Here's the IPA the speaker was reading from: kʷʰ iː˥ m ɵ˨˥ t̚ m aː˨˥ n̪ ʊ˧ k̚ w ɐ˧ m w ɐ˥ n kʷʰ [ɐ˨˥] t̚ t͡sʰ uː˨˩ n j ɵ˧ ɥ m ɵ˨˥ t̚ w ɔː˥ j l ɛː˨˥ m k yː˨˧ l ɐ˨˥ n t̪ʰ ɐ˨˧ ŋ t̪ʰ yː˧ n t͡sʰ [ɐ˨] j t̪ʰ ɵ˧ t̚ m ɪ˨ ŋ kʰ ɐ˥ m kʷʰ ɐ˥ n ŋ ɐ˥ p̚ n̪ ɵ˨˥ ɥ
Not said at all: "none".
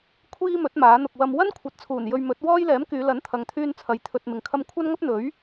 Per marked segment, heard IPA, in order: ɐ˨˥, ɐ˨

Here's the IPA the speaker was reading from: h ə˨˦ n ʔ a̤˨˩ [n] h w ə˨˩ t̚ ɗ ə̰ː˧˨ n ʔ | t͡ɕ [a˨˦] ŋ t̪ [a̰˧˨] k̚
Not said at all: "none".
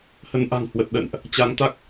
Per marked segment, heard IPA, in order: ŋ, a˨˦, a˦˥

